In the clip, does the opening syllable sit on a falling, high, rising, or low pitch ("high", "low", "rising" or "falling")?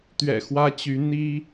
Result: low